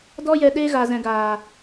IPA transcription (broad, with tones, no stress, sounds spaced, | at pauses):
d ɔ˦ j ɛ˧ ɗ eː˦ ɣ a˨ z ɛ̃˨ ɡ aː˨